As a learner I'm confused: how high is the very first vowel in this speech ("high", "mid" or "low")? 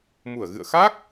high